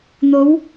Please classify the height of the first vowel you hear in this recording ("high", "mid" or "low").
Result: mid